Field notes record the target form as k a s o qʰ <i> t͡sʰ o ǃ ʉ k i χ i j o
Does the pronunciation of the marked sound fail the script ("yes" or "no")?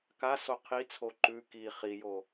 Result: no